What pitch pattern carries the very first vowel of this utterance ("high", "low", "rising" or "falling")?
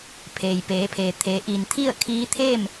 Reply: low